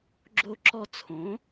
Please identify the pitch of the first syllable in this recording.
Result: high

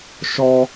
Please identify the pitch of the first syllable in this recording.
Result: low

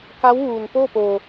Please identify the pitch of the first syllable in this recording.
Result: rising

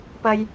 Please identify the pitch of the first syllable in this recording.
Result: high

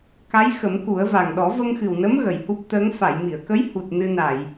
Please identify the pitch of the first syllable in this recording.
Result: rising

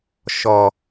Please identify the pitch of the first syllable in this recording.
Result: low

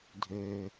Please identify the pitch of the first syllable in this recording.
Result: low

